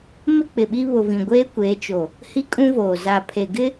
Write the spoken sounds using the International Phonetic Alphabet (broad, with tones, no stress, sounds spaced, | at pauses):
m ɪ˦ k͡p ɪ˨ ɓ i˦ β ʊ˨ v ĩ˨ ɡʷ eː˦ kʷ eː˨˦ t͡ʃ o˨ | h i˦ kʼ ũ˦ v oː˨ z a˨ pʰ e˨ ɡ ɪ˦